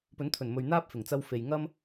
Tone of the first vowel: rising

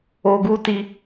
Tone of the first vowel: high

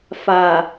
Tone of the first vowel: low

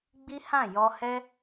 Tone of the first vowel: high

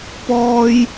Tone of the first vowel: high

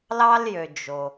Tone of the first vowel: high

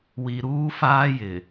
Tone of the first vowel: low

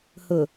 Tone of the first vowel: low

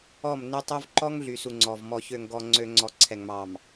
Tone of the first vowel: falling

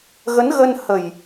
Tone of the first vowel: rising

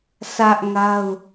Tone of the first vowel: high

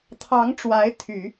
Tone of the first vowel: rising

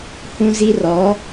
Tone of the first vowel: high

